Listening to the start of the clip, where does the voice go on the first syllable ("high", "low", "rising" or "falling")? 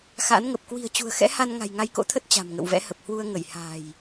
rising